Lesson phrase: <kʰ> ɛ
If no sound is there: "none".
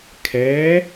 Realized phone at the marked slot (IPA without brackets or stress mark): kʰ